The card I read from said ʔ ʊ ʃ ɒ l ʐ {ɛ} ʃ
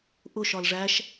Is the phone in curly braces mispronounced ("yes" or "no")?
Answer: yes